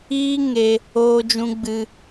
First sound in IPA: iː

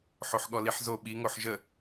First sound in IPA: ħ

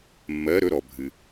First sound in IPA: mː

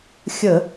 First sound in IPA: xʲ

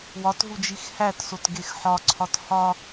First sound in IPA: w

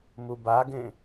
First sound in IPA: m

